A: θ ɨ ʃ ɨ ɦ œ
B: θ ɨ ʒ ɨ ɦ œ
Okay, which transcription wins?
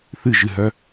B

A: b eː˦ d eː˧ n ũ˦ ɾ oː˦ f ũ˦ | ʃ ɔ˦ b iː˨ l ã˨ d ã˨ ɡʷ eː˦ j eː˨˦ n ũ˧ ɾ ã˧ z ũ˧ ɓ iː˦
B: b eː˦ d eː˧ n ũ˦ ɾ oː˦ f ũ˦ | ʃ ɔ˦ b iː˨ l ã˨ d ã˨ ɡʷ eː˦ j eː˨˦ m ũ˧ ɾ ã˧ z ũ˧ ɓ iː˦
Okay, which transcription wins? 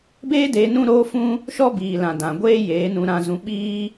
A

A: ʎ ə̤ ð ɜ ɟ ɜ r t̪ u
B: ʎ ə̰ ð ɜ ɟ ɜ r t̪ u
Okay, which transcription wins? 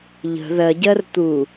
A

